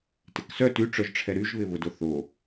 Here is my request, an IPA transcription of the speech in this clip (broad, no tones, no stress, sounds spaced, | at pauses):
t ɪ k s œ t y ʈ͡ʂ œ ʒ ʈ͡ʂʰ ɛ ɾ y ʒ β ɪ β ʊ d o θ o